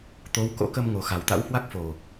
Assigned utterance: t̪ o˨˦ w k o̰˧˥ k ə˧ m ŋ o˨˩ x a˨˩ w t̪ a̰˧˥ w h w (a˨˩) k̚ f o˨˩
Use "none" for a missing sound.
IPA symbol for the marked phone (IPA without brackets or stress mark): a˦˥